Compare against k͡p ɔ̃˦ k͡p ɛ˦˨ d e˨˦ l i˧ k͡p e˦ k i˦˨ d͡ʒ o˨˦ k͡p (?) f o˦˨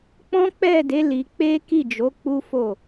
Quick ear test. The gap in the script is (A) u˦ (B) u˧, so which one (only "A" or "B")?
A